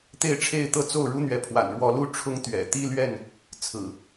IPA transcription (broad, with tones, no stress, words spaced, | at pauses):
t̪e˦ɪ̯ʈ͡ʂʰe˥˨ɪ̯t̪ɤ˥˨ t͡so˥˨ʊ̯ɻu˦n̪ɥɛ˨˦ pʰwa̰˨˩nɻwɔ˨˦ lu˥˨ ʈ͡ʂʰʊ˦ŋ t̪ɥɛ̰˨˩ t̪i˦lɥɛ˥˨n | t͡sʰɹ̩˨˩